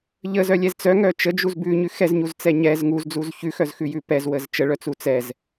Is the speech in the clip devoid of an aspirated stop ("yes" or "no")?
yes